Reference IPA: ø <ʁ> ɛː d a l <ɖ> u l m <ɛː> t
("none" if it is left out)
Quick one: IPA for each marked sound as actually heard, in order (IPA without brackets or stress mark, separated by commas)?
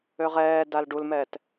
ʁ, ɖ, ɛː